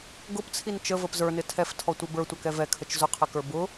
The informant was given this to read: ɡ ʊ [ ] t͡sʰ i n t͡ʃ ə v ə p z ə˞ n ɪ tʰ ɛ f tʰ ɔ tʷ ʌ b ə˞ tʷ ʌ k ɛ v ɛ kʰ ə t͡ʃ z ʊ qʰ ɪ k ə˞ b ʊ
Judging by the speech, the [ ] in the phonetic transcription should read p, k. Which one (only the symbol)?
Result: p